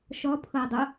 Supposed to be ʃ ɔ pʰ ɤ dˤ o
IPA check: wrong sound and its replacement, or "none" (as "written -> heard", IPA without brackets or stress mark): none